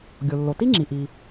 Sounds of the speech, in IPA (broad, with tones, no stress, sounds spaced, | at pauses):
ɡʲ o˩ lː o˩ t i˥ ŋ͡ǁ i˩ ʔ i˩